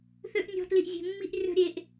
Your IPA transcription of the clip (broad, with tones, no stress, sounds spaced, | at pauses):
θ ø˦ ʔ nʲ ɔ̤˧ t l i˨ ʔ zʲ e̤˨ mː i˧ ʔ rʲ ɔ̤˧ ɾʲ e˨ ʔ